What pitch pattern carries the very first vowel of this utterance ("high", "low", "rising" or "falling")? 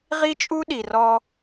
high